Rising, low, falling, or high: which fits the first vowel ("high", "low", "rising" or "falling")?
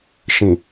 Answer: low